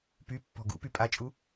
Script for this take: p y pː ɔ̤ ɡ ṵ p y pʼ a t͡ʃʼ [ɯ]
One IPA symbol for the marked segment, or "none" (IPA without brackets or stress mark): u